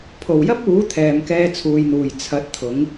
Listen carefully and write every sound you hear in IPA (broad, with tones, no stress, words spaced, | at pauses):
pʰo˨˩wjɐ˥p̚uː˨˥ t̪ʰɛː˨mkɛː˧t͡sʰuː˨jn̪uː˨˩j t͡sʰɐ˨˥t̚t̪ʰʊ˨˥ŋ